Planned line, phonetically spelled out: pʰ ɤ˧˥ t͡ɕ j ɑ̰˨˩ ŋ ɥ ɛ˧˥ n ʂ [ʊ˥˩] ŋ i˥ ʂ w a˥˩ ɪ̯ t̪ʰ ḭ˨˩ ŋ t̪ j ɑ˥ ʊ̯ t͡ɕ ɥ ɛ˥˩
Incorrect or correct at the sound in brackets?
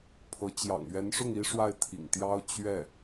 correct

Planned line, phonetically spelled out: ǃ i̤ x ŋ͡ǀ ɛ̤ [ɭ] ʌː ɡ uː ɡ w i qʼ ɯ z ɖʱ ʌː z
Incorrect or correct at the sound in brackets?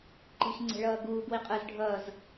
correct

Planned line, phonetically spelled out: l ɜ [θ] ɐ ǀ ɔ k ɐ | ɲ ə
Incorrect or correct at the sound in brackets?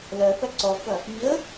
correct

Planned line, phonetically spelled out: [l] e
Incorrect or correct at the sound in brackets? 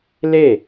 correct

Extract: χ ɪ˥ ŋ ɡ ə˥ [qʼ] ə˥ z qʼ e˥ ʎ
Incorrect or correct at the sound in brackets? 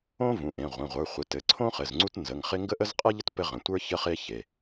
incorrect: ʔ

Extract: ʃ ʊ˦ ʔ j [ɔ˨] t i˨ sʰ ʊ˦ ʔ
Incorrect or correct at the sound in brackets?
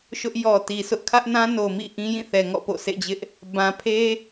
correct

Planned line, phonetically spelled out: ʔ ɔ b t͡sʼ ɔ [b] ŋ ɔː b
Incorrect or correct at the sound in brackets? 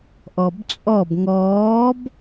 correct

